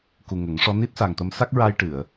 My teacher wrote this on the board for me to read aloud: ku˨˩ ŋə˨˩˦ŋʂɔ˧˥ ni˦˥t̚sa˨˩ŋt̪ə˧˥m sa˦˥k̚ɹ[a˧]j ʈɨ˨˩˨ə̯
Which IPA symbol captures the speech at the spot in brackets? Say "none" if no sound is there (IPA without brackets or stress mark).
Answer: a˧